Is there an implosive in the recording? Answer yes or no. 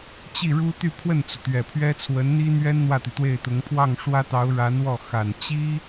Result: no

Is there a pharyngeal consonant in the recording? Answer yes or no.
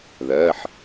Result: yes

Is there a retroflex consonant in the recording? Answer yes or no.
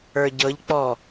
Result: no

